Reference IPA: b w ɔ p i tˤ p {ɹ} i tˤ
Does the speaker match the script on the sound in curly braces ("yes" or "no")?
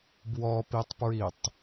yes